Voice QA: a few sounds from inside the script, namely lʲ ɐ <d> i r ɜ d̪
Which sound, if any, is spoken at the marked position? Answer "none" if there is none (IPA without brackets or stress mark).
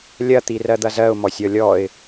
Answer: t̪